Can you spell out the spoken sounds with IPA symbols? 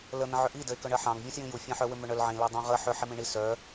l ə n̪ ə̃ ʕ ʏ ʔ i d ə e̯ k œ ɳ ɜ ħ ɑ̃ ŋ vʲ ũ s j ĩ j u fʲ ɑ̃ ħ œ w ʏ m ʏ ɳ œ l ʕ ĩ l ɜ dˤ ũ ʁ ə ħ ʏ ħ i m ĩ ɳ i s œ

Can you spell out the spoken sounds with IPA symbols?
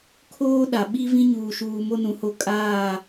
kʰ oː˦ ɗ a˨ ɓ i˦ v ĩ˦ ɲ uː˨ ʃ uː˨ m o˦ n ũ˨ h o˦ kʼ aː˦˨

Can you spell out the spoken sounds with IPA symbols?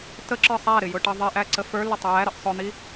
t ə ǁ ə˞ sˤ æ ɾ ɪ j ʊ ʈ ʌ ðˤ i ʔ æ ǀ ə f ə˞ l ɪ tˤ ə j æ ɾ ə ʔ sˤ ʊ n̪ i

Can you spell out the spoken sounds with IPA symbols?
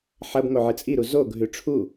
ħ ɐ b ŋ o ʕ ɨ t͡sʼ i ɾ u z o ɡʱ ʉ ʈ͡ʂʰ u

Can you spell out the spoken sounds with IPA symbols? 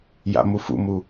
j a̰ m u f ṵ m u

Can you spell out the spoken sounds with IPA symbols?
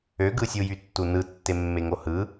ø ɡ ɯ sʲ u j y tː u n ɯ tː e mː e ŋ o h ɯ

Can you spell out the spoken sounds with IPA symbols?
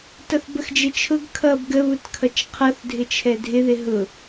t ʌ θ b ə x d͡ʒ ɪ t͡ʃʰ ʊ ɡ kʰ ʌ b ɡ ə β ʊ t kʰ ʌ t͡ʃ qʰ ʌ θ dʱ ɪ t͡ʃʰ ɛ dʱ ɪ ð ɪ ɦ ʊ

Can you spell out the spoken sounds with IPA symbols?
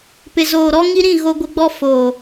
p ɪ˨ z oː˨ ɾ ɔ˦ ŋ i˦ ɾ ĩ˦˨ ɣ o˦ ɡʷ ɪ˦ ɡ͡b ɔ˦ f oː˨

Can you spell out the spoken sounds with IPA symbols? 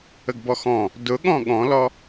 ə ɡ b ɔ x ɔ̃ | d ʊ ɠ ɔ̃ ɠ ɔ̃ l ɔ

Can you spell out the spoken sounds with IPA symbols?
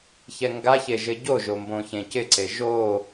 ç ɛ ŋ ɡ a ç e ʒ ɘ ɟ o ʒ o m b õ ç ẽ c ɪ ǀ e ʒ o

